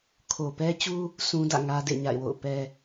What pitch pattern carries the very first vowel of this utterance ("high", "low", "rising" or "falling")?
low